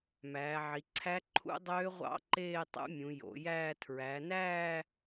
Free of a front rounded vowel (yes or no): no